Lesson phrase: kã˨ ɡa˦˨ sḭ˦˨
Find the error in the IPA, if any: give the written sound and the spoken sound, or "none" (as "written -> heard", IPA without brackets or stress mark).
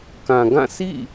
a˦˨ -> ã˦˨